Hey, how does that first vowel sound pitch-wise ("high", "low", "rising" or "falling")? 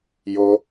high